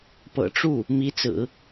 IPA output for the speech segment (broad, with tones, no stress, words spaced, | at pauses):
pɤ̰˨˩ʈ͡ʂu˥˩ | mi˧˥t͡sɹ̩˨˩˦